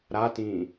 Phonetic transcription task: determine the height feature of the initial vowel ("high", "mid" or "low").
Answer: low